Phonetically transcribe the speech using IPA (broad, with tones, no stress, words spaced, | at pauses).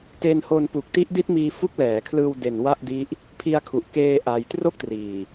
te˧nho˧n pu˨˩k̚ti˦˥ʔdi˦˥t̚miː˧ fu˦˥k̚lɛː˩˦kʰlɯː˧w de˨˩n wa˥˩ʔdi˦˥ʔ | pʰi˧a̯ kʰu˨˩ʔ keː˧ ʔa˧j tro˥˩k̚triː˨˩